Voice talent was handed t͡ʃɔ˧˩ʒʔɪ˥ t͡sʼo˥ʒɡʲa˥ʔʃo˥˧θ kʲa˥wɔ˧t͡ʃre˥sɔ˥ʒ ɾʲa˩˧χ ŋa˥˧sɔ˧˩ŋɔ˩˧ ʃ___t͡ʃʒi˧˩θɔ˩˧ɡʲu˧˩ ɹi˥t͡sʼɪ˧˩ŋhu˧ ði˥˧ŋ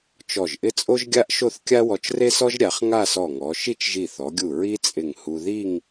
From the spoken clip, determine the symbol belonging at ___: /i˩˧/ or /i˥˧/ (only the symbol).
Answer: i˥˧